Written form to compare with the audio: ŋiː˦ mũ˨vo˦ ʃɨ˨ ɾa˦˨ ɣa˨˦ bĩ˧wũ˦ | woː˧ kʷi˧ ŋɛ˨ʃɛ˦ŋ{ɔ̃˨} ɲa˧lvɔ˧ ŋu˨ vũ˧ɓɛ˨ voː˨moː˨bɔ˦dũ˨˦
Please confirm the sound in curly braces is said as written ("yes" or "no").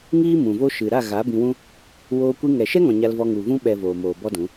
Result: yes